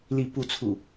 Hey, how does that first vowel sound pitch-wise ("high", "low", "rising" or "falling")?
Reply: rising